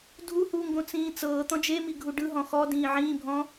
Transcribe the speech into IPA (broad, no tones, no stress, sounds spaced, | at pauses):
dʱ u h uː ŋ ɡ õ t͡s ĩː t͡s ɤː t̪ ɔ̃ d͡ʒ e m i ɡʱ u ɖ ɯ ɦ ɔ̃ x ɔ d ĩː ʕ ĩː bʱ ɔ̃